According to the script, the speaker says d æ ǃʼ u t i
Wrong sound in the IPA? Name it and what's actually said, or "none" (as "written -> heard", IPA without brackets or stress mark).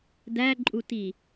none